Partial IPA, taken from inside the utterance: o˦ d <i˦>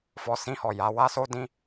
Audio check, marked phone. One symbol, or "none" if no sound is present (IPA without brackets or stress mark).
ĩ˦